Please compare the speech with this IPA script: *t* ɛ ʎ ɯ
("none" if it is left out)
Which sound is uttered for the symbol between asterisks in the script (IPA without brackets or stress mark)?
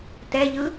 t